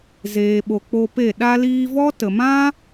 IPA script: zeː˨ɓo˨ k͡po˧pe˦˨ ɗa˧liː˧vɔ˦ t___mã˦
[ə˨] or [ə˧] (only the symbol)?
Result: ə˨